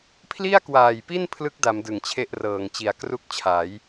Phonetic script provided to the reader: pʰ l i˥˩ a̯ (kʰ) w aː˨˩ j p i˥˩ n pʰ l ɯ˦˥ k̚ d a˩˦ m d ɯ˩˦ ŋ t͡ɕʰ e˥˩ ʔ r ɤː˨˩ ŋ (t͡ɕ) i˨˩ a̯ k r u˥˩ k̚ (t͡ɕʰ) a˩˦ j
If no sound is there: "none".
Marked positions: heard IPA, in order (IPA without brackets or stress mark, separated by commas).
k, t͡ɕ, t͡ɕʰ